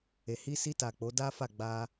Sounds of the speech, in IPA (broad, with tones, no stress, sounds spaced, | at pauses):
e˨ h i˧ s i˧ t a˨ k͡p o˨˦ d a˦ f a˦˨ ɡ͡b a˧